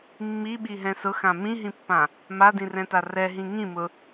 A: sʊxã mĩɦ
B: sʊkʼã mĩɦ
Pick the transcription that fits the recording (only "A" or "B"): A